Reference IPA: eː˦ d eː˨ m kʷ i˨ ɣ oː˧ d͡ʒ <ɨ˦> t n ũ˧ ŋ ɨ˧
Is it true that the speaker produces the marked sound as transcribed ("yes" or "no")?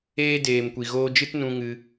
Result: yes